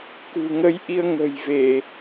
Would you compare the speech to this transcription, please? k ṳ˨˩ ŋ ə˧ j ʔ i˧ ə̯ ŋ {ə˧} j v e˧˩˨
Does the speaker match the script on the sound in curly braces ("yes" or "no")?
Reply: no